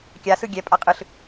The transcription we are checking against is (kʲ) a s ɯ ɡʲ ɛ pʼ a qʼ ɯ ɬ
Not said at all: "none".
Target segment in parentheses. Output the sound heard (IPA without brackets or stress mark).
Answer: kʲ